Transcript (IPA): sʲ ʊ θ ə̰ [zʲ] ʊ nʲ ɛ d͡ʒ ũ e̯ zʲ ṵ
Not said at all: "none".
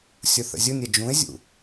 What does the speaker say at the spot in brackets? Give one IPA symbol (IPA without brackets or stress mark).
zʲ